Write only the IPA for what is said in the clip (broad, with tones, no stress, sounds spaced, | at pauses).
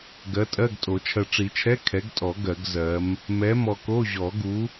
ɡ ɜ˨˥ tʼ ɜ˧˥˧ ɡ tʼ o˨˩˦ t͡ʃʰ ɜ˨ ʈ͡ʂ i˨˩˦ t͡ʃʰ ɛ˧˥˧ kʰ ɛ˨˥ ɡ tʼ ɔ˨˩˦ ɡ ɜ˨˩˦ ɡ z ɜ˨˥ m | m ɛ˨˥ m ɔ˨ k o˧˥˧ ʑ ɔ˨˩˦ ɡ u˨˥